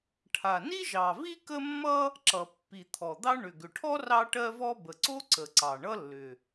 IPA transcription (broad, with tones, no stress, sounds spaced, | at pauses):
ʈʰ a˨˩ n i˥ ʒ ɑ˨˩ v i˥ k ə˥ mː ʌ˥ | ǁ ʌ˨˩ pː i˨˩ t̪ʰ ɔ˨˩ d̪ ɑ˥ ɳ ʏ˨˩ ɡ ʏ˨˩ ʈʰ ɔ˥ r ɑ˥ ʈ ɜ˥ v ɔ˥ b ə˨˩ ǀ o˥ ǀ ə˨˩ ǀ ɑ˨˩ ɳ ʌ˥ lː ʏ˨˩